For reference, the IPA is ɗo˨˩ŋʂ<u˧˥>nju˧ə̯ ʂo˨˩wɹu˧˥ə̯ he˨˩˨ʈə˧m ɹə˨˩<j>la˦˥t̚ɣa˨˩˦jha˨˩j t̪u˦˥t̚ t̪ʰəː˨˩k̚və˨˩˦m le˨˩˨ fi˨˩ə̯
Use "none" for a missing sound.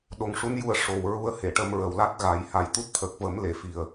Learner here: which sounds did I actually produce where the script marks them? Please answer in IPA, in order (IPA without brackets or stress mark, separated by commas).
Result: u˧˥, w